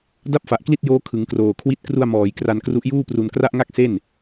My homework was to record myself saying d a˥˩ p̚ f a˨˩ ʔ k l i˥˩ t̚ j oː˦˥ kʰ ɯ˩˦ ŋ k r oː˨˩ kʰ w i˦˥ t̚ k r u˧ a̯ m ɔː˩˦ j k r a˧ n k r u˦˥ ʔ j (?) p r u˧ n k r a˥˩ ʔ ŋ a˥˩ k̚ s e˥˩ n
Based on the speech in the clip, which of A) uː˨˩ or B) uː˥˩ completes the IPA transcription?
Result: B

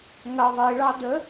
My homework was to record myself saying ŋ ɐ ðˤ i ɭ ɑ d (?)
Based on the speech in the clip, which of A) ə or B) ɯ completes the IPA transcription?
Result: A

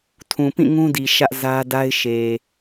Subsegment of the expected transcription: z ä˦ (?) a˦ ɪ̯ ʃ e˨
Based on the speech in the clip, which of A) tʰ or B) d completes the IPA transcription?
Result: B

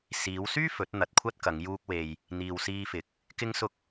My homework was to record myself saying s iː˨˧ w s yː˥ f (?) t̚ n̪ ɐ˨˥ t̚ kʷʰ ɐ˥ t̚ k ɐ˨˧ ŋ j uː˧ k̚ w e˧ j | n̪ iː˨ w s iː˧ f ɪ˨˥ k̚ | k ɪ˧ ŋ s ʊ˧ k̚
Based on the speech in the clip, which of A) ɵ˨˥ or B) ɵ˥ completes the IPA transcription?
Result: A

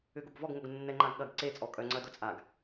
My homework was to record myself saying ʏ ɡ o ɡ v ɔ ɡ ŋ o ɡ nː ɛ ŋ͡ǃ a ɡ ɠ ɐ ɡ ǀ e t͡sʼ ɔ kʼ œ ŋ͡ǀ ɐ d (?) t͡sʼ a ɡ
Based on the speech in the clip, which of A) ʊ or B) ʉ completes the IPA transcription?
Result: A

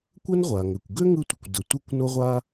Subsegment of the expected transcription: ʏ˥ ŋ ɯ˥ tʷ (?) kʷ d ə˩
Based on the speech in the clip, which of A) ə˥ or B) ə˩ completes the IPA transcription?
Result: B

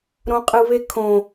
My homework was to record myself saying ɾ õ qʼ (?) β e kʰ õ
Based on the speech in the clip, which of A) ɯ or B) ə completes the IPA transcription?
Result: A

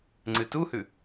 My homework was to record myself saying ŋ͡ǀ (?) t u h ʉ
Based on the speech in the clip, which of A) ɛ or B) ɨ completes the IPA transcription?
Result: B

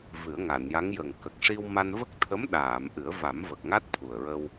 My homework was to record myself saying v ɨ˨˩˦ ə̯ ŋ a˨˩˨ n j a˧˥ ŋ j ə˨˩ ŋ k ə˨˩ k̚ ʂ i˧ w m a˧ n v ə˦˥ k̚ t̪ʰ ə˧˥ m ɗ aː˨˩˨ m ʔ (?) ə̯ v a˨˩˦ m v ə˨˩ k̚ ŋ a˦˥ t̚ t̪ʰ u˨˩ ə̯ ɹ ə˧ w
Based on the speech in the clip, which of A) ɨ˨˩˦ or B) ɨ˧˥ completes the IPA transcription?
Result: A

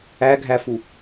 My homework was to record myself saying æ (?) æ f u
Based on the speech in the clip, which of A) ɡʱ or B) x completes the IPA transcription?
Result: A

